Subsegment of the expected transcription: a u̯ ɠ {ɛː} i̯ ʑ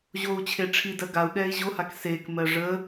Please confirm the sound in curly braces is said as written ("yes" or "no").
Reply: yes